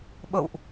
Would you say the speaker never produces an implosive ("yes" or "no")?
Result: no